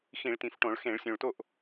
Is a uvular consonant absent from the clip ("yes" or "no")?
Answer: yes